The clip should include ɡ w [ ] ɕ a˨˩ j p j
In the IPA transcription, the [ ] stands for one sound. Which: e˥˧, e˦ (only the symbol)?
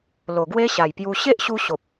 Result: e˦